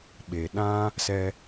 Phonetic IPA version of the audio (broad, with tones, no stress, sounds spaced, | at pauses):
ɓ e˨ ɗ ã˦ | s ɛ˧